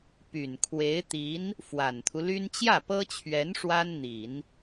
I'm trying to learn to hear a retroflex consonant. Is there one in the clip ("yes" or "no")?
yes